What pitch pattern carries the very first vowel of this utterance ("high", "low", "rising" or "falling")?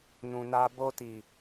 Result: low